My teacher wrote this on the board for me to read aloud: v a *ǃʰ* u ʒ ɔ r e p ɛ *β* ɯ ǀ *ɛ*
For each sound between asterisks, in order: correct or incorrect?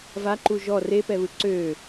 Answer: incorrect: ǃ, correct, incorrect: ø

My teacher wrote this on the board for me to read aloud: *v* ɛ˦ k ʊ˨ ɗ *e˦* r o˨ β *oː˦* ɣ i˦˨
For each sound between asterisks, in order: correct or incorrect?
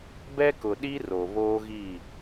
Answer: incorrect: b, incorrect: i˦, correct

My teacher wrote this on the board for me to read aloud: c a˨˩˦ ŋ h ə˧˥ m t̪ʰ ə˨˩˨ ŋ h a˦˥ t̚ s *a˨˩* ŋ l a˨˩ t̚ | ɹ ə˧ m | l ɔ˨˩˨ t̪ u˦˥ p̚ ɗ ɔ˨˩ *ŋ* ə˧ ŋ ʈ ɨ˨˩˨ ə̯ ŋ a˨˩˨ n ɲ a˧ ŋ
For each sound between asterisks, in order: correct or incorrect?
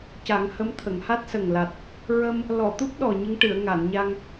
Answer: incorrect: ə˨˩, incorrect: ɲ

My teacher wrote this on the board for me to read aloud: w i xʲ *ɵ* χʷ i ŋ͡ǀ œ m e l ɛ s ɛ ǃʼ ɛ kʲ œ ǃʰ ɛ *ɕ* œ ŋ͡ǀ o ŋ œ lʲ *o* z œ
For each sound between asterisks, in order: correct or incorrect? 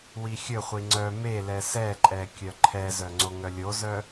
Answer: correct, incorrect: z, correct

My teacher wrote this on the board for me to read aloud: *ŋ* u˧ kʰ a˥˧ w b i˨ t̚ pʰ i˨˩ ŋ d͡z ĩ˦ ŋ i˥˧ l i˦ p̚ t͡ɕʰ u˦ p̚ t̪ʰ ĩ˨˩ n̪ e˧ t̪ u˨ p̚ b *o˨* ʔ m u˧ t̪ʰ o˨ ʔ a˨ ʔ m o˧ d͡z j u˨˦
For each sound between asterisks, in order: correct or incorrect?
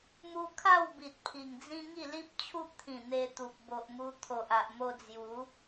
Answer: incorrect: m, correct

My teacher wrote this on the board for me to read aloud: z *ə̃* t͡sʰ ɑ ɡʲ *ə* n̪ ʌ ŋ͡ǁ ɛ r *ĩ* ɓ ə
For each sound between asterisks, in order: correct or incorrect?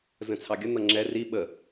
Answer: correct, correct, incorrect: i

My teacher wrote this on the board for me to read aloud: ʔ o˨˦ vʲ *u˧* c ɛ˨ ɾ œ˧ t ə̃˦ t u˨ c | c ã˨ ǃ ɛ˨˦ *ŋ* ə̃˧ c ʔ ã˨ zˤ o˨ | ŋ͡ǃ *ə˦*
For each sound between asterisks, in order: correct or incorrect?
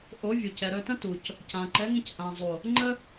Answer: incorrect: u˨, correct, correct

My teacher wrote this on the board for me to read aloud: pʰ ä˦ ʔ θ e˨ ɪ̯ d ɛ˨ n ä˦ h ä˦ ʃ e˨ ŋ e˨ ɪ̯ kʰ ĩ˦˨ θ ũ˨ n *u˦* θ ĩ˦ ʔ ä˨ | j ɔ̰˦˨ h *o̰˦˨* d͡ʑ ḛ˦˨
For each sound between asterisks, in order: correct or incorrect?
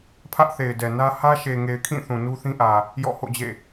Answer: correct, correct

